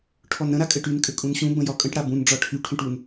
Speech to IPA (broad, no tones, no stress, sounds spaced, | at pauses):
ʈʰ ɔ n ɾ ə̃ ɾ a kʼ ɘ ʈ y n kʼ ɘ kʼ ũ n ɕ ũ b ə̃ j ɒ kʼ ə̃ ʈ ɽ a b ũ n ɖ͡ʐ ɒ ʈʰ y ʈʰ ũ ʈ u n